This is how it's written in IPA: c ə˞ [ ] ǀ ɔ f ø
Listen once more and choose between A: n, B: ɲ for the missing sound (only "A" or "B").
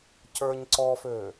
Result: B